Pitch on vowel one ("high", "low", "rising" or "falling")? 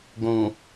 low